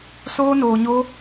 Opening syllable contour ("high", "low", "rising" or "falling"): high